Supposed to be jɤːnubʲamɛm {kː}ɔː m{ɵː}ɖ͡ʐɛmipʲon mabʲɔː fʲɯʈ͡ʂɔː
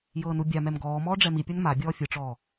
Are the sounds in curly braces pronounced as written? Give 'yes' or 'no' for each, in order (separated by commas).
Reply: no, no